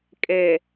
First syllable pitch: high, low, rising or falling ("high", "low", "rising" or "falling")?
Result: low